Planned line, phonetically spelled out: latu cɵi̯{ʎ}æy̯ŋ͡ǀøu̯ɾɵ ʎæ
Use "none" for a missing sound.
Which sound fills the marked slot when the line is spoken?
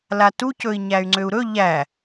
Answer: ɲ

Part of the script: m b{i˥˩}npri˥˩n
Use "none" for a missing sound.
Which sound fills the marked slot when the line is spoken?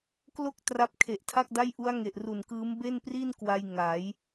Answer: e˥˩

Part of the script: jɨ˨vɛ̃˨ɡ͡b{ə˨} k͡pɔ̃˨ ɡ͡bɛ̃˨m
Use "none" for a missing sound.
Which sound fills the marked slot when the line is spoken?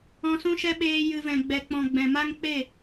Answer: ɛ˨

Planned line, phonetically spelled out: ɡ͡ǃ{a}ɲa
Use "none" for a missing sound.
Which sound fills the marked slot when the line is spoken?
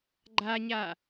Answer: a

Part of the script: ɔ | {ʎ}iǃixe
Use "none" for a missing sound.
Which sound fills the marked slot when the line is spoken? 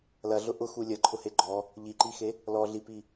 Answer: ʎ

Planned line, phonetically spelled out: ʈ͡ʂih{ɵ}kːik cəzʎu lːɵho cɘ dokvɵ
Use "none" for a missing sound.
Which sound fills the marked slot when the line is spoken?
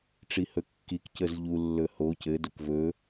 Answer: ɵ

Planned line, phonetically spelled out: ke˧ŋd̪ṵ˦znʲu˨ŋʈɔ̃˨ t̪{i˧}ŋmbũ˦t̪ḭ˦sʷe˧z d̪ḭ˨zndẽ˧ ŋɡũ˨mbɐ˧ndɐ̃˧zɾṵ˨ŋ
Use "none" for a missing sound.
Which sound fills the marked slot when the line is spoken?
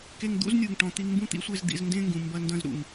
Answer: i˧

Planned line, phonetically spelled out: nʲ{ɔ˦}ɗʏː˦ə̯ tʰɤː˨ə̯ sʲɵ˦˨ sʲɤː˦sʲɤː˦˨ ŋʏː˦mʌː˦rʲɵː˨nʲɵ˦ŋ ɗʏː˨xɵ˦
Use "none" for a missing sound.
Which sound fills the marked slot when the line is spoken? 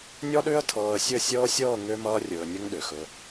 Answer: ɔ˦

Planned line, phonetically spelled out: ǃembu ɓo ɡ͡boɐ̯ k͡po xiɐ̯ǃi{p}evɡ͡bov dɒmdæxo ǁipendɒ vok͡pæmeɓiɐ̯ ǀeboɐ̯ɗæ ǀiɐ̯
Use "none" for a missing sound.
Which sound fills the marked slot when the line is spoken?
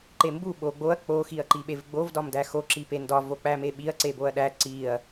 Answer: ɓ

